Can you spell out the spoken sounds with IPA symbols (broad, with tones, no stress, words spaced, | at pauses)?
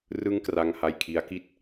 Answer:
rɯ˦˥ŋkra˧ŋha˧j kʰi˦˥a̯ki˥˩t̚